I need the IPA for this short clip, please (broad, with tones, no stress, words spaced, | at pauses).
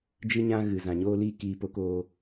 d͡ʒɨ˧ɲã˧ ɣɨ˨ zã˨ɲoː˧liː˧ kiː˨po˨˦ koː˧